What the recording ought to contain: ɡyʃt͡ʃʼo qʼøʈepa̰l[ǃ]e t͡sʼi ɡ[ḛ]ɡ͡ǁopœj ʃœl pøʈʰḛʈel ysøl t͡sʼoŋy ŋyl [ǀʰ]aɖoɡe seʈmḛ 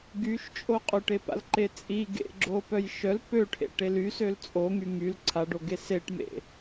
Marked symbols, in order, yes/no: yes, yes, yes

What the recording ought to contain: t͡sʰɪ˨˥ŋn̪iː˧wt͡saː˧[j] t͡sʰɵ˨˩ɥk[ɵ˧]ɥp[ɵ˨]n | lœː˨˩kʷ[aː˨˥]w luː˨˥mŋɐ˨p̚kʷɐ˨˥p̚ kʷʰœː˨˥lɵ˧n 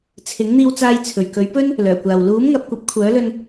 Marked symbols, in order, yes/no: yes, no, no, no

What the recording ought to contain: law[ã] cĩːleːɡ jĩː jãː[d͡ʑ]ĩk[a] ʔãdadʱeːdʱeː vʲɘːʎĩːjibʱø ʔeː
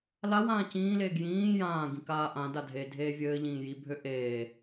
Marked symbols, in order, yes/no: no, no, no

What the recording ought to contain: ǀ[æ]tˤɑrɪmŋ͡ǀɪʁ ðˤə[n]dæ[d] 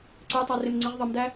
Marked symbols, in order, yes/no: yes, no, no

